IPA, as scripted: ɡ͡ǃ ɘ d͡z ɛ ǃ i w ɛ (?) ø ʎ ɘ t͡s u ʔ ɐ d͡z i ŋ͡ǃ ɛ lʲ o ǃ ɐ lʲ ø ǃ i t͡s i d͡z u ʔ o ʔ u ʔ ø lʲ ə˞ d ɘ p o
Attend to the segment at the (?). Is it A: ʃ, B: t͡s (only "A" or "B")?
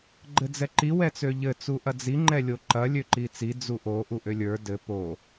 B